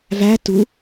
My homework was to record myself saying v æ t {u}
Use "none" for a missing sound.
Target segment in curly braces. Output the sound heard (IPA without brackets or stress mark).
u